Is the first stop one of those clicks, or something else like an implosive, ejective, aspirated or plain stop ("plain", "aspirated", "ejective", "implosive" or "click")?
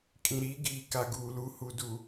ejective